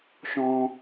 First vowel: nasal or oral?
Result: nasal